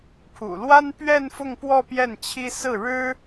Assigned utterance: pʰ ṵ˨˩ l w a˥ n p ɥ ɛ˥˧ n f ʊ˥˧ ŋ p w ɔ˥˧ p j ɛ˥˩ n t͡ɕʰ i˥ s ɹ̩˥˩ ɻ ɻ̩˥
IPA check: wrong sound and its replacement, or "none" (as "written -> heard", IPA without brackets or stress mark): none